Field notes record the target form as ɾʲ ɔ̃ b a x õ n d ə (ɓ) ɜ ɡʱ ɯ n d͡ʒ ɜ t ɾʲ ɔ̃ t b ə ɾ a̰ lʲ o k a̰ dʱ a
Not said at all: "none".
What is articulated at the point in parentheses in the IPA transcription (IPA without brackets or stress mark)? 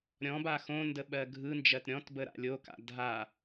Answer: ɓ